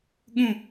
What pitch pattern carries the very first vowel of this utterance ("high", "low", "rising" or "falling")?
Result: falling